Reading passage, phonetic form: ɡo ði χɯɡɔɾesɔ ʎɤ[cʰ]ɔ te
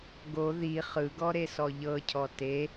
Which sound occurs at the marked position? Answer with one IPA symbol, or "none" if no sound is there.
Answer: cʰ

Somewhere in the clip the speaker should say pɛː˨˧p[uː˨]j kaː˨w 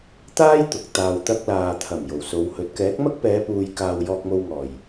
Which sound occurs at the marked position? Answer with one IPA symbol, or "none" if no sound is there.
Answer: uː˨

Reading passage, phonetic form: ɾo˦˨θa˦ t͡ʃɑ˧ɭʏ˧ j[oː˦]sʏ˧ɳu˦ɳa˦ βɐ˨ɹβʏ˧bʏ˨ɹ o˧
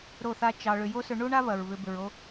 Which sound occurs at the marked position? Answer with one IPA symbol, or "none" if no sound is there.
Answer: o˦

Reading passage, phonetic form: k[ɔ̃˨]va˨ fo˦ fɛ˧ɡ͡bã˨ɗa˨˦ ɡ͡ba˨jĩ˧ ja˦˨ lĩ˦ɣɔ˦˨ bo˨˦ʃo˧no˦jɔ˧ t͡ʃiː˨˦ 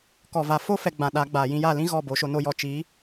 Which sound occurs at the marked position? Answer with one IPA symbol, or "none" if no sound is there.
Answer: ɔ˨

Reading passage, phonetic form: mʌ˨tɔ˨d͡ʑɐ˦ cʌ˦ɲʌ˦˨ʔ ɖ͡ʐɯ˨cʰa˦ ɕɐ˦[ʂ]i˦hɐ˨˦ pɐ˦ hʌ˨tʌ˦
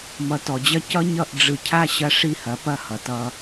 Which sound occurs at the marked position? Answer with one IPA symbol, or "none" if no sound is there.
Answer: ʂ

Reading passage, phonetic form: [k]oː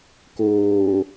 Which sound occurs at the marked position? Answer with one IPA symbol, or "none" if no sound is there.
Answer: k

